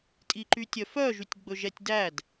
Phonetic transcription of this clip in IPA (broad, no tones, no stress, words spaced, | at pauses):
tʼiǃytʲœfœ ʒytʲɡ͡bɵʒɛtʲdæd